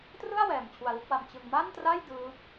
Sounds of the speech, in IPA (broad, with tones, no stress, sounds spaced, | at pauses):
t r ɯ˥˩ a̯ w ɛː˨˩ m t͡ɕʰ u˧ a̯ l u˥˩ k̚ w a˧ m t͡ɕ ɯ˧ ŋ m a˥˩ n t r a˥˩ j d ɯː˦˥ p̚